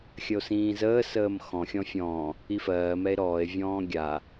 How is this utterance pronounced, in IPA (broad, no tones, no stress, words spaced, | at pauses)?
xʲəo̯sĩːzəː səːmxɔ̃ xʲɔ̃fʲɔ̃ː | ifɜː mɛe̯ɾɔːe̯ vʲɔ̃ːɡʲa